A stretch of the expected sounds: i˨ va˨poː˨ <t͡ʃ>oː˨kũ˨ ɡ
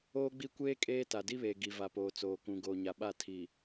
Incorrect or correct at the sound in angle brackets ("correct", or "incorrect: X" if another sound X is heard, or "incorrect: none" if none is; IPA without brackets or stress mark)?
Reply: incorrect: t͡s